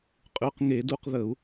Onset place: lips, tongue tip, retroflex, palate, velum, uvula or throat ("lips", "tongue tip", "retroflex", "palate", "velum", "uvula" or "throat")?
uvula